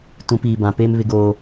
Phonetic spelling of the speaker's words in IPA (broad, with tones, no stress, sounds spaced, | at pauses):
t ũ˨˦ p iː˨ b ã˨ p eː˦ m β ɪ˦ ɡ oː˦